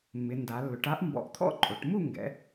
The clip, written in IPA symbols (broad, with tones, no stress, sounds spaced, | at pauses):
mː ɪ˩˧ n d a˩˧ lː ʊ˩˧ ʈ a˥ ʔ m b ɔ̰˧ ʔ t̪ʰ ɔ̰˥ ǃʼ o˩˧ ʈ m u˥˧ ŋ ɡ ɛ̰˩˧